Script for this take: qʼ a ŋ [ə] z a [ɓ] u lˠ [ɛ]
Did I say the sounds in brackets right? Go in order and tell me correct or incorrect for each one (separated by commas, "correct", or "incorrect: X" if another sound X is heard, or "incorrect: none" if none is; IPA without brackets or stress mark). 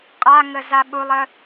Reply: correct, correct, incorrect: ə